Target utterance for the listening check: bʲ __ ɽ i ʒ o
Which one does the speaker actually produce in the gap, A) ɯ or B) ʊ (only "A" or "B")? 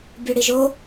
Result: B